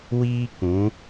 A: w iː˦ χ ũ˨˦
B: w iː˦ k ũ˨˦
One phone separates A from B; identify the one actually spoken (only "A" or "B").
B